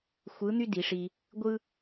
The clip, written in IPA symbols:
xʷɯ˧˥n̪y˥di˩˧ʂi˧ | ɡʷɯ˥

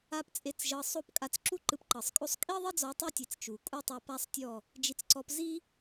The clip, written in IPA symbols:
a˦pt͡sʼe˦˨t͡sʒɤ˧sˤo˦p kʼa˧t͡sǁu˦ ǃɯ˧pǃɤ˨sˤkʼo˦sˤ kʼi˦ðˤi˦d͡zɔ˨˦ tˤɯ˦tʲe˨t͡s t͡ʃu˨ kʼu˦tˤu˧pa˦sˤtʲɔ˦˨ | d͡ʒi˧t͡sǀɔ˧p zi˦

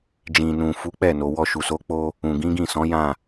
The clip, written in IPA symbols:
d͡ʒĩ˨nũ˨ fu˨˦k͡pɛ˦˨no˨ wɔ˧ ʃu˨so˨˦ k͡po˧ | ũ˨ɡĩ˨˦ɡĩ˦˨sɔ̃˨˦ jã˦˨

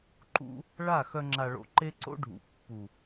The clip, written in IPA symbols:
ǃṵ˧ | ɭa˦˨xœ˧ ŋ͡ǁa˨ɭo̰˨ ǃe˦ǀo̰˦ɖʱṵ˨ pːu˨

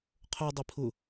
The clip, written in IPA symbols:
qʰodˤi pʰʊ

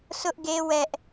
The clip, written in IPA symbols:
sʊ˦ʔɡe˦ wɛ˦ʔ

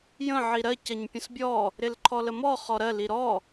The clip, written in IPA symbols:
jə̃ ʕiɾɜ cɐɲpʲə̃sbʲɔ | ɾɪlǃʰɔləmɔ χɔɾɜ liɾɔ

